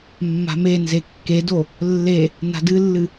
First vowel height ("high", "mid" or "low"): low